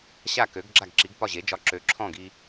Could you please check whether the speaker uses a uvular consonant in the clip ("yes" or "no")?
no